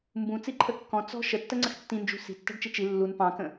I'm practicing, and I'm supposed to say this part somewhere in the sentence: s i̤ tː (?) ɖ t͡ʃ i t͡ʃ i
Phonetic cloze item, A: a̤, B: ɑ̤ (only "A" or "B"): B